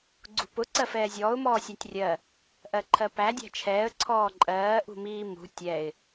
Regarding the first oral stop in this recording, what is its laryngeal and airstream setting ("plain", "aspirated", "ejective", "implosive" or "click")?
click